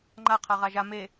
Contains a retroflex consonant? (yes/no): no